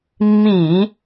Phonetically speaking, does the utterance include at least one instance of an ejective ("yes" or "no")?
no